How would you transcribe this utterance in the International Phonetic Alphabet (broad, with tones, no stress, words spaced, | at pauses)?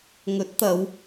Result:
ŋɵ˨˥t̚t̪ɐ˨˧w